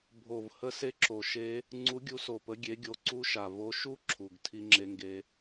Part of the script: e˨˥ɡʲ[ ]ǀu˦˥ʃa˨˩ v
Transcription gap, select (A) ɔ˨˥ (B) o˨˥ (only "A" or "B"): B